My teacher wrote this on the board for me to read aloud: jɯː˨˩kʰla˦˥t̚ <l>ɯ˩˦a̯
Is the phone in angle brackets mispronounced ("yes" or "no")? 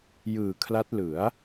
no